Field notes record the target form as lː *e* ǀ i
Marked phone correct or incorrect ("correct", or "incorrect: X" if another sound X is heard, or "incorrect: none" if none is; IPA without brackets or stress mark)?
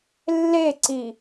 correct